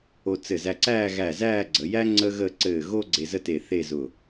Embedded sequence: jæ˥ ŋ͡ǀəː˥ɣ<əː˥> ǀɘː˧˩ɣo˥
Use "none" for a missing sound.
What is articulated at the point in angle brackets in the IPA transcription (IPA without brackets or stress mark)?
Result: əː˥˧